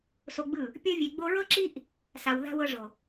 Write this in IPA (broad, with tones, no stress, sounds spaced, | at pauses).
s o˧ ɡ͡b ɯ˦˨ | pʲ ɤ˧ vʲ e˨ ɡ͡b o˧ ɹ ɤ˦ ǁ i˦ ʔ | s a˨ w ð a̤˧ w ɤ˧ ʐ o˨